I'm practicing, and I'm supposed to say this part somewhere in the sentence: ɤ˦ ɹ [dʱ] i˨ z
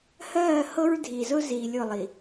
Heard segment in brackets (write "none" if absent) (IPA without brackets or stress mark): dʱ